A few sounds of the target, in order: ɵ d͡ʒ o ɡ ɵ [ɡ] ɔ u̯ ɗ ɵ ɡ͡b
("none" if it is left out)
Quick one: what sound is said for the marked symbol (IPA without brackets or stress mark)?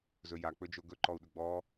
ǃ